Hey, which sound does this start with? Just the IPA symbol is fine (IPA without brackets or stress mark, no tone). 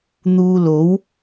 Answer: n̪